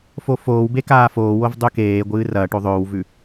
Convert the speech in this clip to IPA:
fofoːwbe kaːfoːwov dˤʉkeːɡʷɨː rɐ ʈoðˤɵːwvʉ

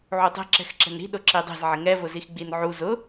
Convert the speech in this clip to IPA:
ʕutˤe̤ ǁɛ̤xǁɛ̤nɾi̤ ɗʊǁidˤe̤z ʕɪŋɛ vʊzixɡ͡binʕu zʊ

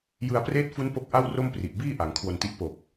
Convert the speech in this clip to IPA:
jɯ˧a̯preː˦˥t̚fu˦˥n po˦˥k̚ʔa˥˩wro˥˩mpri˨˩ʔ biː˥˩ʔa˩˦ŋ kʰwo˧nti˦˥ʔ po˨˩k̚

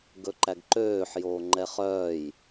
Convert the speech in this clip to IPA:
ɡɵǃæɡǃøːħ joːŋ͡ǃɛχœːj

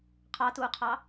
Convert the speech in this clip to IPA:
qʰɑtuːqʰɑ

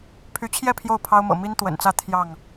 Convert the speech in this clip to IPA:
pʰy˨˦t͡ɕʰjɛ˥˨ pʰjo˥˨ʊ̯pʰɑ˦ʊ̯mɤ̰˨˩ mi˦n t̪wə̰˨˩nt͡sä˥˨ t̪ʰjɑ˥˨ŋ

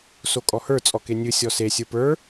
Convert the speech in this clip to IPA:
sokʼɔhə˞ t͡sʼɔkenʲɨ sʲɔse sʲə˞pə˞

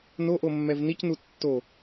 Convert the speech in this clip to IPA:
noʔomːɛv nicnu tːo

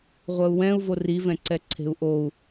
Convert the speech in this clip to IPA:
ʁʷɜu̯wɛ̃u̯ vori vɛ̃ǀɛǀʰe̤u̯ʔou̯

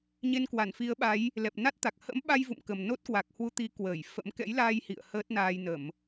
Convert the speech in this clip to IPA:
ɲe˧nkwa˧˩nfi˨˦ə̯ɓa˨˦j | lɛ˨˩p̚na˦˥t̚t̪a˨˩k̚ hə̰˧˥mɓa˧j vṵ˧˨mkə˨˩m no˦˥t̚kwa˨˩k̚hwu˧ t̪i˨˦kwəː˧˩j fə̰˧˥m kɛ̰˧˥jlaː˧j hḭ˧˨ə̯ həː˦˥t̚naː˧jnə˧˩˨m

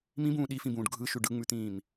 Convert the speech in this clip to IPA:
mĩbũː ɗifĩbũːɖ ɡʱɯʃʉ ɖɯŋ͡mʉt̪ĩːm

